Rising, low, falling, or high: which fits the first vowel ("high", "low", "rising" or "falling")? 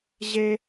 high